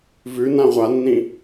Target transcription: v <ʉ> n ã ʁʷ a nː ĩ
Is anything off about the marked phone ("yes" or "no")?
no